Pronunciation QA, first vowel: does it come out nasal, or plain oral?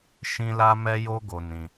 nasal